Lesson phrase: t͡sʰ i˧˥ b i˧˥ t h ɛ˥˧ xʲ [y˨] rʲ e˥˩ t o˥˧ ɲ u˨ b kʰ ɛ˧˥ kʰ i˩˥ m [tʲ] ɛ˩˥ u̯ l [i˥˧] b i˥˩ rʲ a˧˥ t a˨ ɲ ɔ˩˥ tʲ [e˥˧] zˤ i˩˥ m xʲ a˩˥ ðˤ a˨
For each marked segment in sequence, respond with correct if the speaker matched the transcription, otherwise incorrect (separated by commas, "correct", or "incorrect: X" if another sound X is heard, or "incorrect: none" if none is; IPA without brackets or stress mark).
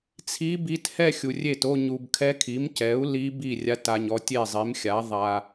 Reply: incorrect: u˨, incorrect: c, incorrect: i˧˥, incorrect: e˥˩